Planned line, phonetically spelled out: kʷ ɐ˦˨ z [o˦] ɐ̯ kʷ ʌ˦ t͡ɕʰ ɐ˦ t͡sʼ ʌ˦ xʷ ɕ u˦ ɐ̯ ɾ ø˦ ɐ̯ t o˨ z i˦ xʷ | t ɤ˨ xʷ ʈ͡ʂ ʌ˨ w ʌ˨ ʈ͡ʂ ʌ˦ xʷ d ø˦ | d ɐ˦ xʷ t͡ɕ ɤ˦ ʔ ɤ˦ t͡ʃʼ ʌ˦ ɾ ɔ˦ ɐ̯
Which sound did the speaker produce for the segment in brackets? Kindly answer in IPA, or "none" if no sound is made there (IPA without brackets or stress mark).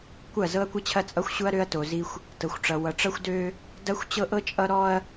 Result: ɤ˦